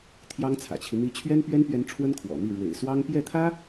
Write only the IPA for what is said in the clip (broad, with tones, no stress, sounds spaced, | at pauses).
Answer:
t̪ʰ j ɑ˥ ŋ t͡sʰ ä̰˨˩ t͡ɕʰ i˦ n̪ i˧˥ t͡ɕʰ ɥ ɛ˥ n p ɥ ɛ˥ n p ɥ ɛ˧˥ n ʈ͡ʂʰ w ə˥ n kʰ w ɔ̰˨˩ n̪ i˥˩ ɻ w ḛ˨˩ ɪ̯ s w ɑ˥ ŋ p j ɛ˥˩ t̪ʰ ä˥